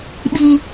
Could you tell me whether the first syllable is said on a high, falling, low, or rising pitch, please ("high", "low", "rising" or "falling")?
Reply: low